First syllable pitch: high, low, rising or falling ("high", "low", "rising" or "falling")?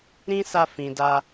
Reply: high